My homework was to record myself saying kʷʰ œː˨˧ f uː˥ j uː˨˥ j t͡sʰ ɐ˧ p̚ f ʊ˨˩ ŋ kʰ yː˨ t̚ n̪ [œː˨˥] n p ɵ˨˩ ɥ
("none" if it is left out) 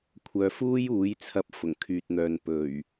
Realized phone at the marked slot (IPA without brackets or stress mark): œː˨